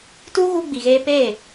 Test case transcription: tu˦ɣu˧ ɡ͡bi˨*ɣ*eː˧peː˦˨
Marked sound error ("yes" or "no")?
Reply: no